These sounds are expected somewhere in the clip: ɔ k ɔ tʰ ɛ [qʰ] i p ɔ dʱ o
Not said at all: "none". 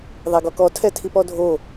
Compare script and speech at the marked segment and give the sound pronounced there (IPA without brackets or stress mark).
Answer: tʰ